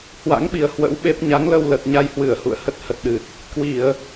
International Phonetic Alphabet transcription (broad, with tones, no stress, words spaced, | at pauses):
hwa̰˧˥ŋɓi˨˩ə̯ hwə̰˧˥wɓe˦˥p̚ ɲa˨˦ŋlə˧wlə˨˩t̚ ɲa˧jhwɨ˧˩ə̯hṵ˧˨ə̯ hə˦˥t̚hə˨˩t̚ɗɨ˨˩t̚ | kwi˧˩˨ə̯